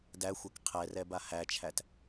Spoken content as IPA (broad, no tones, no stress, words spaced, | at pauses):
dæxʷɛk qʰɛrɛba hæt͡ʃʰæt